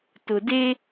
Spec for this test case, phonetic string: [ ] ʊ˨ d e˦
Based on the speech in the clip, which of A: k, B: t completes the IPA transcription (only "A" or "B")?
B